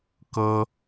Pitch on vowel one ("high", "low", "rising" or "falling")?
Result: high